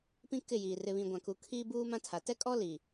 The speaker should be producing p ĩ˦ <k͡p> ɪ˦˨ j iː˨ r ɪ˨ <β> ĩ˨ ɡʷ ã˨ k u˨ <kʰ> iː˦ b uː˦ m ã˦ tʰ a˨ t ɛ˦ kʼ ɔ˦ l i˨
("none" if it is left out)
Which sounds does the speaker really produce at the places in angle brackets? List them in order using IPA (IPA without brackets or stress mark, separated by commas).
k, β, kʰ